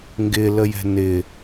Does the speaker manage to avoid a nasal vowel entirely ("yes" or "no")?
yes